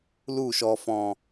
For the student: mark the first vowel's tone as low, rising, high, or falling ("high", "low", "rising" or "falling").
falling